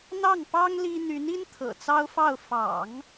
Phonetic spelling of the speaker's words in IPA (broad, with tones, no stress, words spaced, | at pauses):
n̪ɑ˥˩ŋpɑ˥ŋ li˥ n̪y˧˥ni˥n t̪ʰɤ̰˨˩t͡sɑ˥ʊ̯fɑ˥˩ʊ̯ fɑ̰˨˩˦ŋ